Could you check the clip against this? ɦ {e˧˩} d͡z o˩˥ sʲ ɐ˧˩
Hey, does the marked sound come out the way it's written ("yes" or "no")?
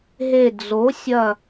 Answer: yes